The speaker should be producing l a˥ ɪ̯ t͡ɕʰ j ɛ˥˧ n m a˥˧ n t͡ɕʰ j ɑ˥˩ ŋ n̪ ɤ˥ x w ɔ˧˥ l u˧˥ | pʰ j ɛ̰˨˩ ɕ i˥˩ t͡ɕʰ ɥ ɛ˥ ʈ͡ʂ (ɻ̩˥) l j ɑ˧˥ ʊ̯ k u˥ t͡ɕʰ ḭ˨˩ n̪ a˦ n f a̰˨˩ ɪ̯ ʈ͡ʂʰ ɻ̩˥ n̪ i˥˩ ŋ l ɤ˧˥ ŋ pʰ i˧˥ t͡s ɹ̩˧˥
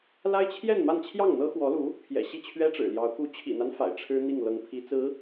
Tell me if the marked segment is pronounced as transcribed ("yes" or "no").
no